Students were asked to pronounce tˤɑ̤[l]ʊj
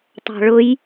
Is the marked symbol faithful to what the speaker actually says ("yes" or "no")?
no